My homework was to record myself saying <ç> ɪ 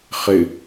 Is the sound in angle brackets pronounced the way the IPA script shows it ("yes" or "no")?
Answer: no